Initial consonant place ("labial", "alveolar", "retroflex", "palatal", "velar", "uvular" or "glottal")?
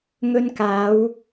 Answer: velar